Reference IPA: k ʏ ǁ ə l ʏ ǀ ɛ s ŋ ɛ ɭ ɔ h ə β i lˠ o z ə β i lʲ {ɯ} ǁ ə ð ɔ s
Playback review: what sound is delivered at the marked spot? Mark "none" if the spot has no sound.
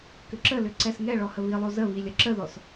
ə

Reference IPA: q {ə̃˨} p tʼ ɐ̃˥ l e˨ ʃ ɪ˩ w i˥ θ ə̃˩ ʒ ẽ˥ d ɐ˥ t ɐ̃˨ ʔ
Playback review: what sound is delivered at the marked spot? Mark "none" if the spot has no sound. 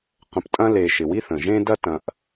ə̃˨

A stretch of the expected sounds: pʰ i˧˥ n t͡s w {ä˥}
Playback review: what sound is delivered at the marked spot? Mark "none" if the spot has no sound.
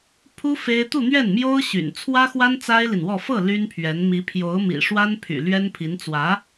ä˧˥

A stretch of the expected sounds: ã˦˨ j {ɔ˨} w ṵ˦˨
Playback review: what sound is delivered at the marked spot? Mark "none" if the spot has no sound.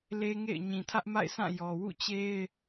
ɔ˨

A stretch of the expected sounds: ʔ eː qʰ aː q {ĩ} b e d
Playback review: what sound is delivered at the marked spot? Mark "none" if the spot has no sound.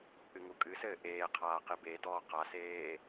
i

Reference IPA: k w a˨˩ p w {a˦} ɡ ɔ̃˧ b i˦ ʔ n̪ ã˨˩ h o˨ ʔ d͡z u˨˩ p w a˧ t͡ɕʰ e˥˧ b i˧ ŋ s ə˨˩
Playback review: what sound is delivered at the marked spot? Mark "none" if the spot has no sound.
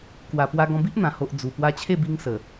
a˧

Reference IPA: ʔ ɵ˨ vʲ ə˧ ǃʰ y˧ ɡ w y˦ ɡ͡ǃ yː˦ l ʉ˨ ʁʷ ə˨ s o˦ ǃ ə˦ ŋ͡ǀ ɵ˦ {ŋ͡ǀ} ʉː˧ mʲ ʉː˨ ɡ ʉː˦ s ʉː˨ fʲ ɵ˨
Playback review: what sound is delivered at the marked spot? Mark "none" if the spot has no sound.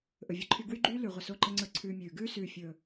ǀʰ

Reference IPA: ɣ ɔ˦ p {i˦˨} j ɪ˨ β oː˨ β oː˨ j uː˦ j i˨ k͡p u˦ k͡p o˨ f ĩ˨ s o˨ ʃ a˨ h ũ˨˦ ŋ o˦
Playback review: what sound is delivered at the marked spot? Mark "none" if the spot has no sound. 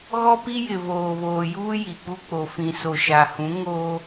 i˦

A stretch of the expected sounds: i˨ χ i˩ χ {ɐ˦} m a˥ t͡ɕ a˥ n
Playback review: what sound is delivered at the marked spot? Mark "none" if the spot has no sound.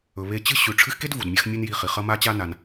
ɐ˦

